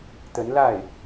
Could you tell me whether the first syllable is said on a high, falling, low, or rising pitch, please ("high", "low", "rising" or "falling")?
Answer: rising